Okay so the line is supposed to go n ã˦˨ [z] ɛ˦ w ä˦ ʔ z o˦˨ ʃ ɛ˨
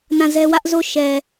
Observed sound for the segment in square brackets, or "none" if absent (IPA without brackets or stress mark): z